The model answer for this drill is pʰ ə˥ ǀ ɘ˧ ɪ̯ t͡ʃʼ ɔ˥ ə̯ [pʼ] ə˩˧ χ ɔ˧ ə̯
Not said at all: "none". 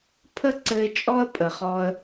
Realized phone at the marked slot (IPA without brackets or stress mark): pʼ